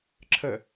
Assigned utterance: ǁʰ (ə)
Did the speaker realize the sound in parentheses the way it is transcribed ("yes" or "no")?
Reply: yes